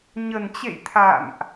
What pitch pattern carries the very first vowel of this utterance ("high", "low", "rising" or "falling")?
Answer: low